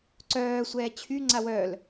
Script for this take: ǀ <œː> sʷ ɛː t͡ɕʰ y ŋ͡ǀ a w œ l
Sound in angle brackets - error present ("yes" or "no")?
no